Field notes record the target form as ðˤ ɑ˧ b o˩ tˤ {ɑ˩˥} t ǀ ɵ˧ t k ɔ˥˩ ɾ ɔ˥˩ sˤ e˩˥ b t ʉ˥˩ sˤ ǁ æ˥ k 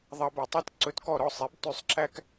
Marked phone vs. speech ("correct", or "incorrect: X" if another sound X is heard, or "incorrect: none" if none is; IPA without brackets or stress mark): incorrect: ɑ˥